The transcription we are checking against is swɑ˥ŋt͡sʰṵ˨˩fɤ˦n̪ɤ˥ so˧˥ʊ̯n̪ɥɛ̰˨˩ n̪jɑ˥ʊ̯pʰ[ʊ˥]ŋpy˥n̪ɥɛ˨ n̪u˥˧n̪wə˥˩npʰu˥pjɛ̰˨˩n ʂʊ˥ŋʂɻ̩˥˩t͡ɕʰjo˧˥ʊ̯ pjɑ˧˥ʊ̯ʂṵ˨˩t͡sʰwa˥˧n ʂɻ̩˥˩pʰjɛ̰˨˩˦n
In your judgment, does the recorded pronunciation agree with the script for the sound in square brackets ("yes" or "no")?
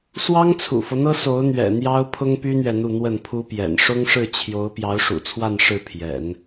yes